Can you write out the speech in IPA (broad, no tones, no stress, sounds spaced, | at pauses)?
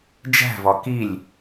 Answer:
d͡ʒ æ̤ v ɒ k i lʲ